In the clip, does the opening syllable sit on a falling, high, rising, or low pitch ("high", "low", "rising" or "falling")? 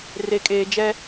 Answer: high